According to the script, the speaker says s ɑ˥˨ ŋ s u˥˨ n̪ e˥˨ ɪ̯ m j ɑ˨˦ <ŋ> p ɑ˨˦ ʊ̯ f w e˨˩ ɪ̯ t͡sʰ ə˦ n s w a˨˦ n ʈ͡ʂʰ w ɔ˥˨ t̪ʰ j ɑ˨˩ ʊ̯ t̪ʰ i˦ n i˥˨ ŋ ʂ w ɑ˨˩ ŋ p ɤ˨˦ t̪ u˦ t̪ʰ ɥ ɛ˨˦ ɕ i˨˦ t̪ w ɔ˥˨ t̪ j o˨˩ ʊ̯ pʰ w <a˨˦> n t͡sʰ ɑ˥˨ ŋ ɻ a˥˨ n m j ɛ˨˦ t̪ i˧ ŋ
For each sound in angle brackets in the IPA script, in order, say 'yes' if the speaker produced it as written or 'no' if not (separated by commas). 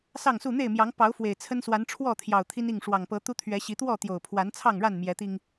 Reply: yes, yes